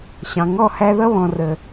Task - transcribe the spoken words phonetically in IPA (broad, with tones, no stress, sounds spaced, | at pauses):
ɕ ɑ̃˨ ŋ ɔ˦˨ h æ˦ ð ʌ˦ β ɔ̃˨ r ə˨